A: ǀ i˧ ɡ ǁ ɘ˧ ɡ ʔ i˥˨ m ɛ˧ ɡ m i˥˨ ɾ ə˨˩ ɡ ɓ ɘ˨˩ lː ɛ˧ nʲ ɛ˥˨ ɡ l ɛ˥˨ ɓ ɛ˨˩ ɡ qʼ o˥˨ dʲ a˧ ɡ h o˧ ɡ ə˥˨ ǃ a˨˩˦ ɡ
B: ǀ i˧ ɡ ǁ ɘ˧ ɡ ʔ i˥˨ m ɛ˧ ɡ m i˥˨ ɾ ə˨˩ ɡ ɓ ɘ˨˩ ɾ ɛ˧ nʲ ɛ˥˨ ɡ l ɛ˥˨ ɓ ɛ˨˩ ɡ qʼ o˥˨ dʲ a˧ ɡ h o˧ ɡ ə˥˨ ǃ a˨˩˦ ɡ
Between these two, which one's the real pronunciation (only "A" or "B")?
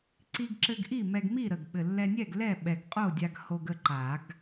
A